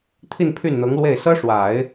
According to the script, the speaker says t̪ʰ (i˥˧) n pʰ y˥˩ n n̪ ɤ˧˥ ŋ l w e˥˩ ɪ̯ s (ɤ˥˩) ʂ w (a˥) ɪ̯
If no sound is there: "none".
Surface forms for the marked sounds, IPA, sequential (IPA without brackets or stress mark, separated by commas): i˥˧, ɤ˥, a˨˩˦